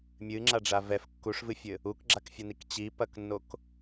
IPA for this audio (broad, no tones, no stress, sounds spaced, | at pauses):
mʲ ɨ ŋ͡ǁ a ɖ͡ʐ a v ɛ f kː u ʂ v ɨ fʲ ɘ | u k ɡ͡ǁ a k fʲ ɐ n i k t͡ɕ i p ɐ k nː o k